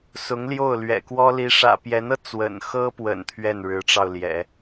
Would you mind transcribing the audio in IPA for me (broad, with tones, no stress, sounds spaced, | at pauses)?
s ʊ˧˥ ŋ l j o˥˩ ʊ̯ l ɥ ɛ̰˨˩ k w ɔ˥ l i˧˥ ʂ ä̰˨˩ p j ɛ˧˥ n ɤ˧ t͡s w ə̰˨˩ n x ɤ˥ p w ə̰˨˩ n t̪ʰ ɥ ɛ˥˩ n ɻ ɻ̩˧˥ ʈ͡ʂ ɑ˧ ʊ̯ l j ɛ̰˨˩˦